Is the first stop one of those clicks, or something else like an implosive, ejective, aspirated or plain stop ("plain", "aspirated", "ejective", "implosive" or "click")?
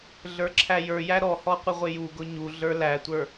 click